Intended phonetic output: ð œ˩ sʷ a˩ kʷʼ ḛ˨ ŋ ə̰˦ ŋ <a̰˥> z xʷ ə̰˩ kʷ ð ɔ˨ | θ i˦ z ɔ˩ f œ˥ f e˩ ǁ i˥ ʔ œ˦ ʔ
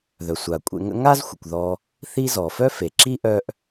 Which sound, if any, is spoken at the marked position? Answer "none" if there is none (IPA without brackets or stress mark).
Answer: a˥